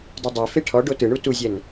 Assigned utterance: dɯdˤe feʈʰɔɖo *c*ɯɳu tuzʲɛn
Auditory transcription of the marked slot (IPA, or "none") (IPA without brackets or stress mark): t